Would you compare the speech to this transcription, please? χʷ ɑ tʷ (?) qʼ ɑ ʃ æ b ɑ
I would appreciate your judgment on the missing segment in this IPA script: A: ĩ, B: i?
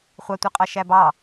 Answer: B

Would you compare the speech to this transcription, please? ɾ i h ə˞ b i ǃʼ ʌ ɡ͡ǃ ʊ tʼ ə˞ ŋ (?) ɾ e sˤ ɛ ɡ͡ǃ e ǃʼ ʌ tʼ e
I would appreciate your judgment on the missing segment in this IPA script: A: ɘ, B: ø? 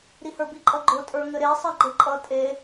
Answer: A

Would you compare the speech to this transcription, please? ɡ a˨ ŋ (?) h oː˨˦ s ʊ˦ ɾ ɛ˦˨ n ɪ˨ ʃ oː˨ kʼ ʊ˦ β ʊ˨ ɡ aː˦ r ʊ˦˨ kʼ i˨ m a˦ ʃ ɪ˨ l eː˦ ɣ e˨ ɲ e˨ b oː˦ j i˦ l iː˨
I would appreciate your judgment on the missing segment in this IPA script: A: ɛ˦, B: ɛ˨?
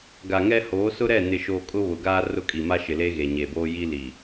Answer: A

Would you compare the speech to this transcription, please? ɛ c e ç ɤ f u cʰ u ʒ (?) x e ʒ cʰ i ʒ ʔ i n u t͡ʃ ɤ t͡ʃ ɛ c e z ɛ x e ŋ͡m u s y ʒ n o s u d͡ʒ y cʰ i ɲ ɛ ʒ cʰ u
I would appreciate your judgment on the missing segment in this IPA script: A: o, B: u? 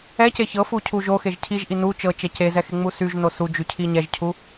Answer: A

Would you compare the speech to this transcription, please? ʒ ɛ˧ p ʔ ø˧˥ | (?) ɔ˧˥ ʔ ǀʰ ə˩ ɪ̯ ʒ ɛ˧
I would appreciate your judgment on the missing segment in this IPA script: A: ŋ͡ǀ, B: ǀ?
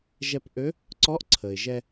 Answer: B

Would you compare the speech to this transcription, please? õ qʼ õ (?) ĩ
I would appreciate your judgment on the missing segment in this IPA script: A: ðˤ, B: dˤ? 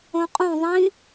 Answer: A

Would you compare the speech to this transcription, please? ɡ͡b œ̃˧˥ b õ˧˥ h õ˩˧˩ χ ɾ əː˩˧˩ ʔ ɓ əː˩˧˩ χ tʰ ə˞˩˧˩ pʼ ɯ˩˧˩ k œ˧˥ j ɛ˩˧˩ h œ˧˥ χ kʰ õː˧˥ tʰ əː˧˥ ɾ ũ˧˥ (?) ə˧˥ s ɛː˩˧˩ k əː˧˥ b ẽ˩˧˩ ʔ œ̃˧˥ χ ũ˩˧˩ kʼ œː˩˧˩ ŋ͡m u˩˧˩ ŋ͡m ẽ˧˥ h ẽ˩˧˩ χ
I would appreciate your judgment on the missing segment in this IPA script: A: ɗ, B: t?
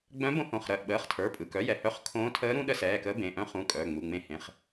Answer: A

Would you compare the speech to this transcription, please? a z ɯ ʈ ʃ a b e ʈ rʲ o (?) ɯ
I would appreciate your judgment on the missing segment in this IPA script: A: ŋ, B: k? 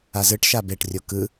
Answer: B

